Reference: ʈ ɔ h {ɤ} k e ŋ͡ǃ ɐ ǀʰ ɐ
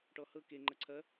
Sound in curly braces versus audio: correct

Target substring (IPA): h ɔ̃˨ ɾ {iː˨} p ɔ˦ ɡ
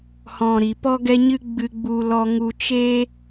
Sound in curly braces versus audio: incorrect: i˨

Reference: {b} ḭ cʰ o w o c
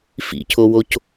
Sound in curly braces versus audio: incorrect: f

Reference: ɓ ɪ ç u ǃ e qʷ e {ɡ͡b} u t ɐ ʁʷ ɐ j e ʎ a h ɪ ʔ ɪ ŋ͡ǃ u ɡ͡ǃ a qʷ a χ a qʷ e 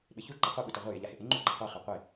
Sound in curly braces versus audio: incorrect: ɓ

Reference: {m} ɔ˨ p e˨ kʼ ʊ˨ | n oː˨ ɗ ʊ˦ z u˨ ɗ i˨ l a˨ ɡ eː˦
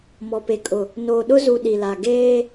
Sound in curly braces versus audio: correct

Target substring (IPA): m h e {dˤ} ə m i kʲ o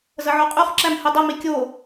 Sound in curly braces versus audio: correct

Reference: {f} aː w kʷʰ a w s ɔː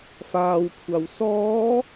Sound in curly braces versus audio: correct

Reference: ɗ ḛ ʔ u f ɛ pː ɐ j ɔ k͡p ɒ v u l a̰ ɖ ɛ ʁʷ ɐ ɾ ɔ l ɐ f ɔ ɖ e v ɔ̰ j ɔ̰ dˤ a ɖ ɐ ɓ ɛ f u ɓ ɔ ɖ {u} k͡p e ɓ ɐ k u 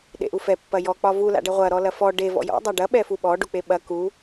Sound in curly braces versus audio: correct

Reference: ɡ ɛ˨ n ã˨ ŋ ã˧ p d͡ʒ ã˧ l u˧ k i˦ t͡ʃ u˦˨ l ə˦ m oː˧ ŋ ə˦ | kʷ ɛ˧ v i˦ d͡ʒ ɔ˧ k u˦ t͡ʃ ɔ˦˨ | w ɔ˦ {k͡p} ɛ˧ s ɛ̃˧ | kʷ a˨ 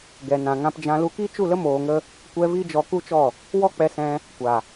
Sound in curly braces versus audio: correct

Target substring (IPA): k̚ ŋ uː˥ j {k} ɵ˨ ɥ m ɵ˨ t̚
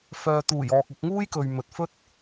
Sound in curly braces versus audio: correct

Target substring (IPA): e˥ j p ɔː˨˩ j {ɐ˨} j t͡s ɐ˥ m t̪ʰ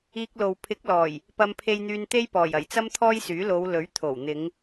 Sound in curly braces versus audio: incorrect: ɐ˨˩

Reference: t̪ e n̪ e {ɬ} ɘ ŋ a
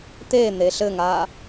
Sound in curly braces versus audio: correct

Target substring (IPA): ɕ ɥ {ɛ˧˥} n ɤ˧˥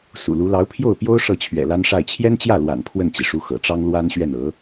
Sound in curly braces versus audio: incorrect: ɛ˥˩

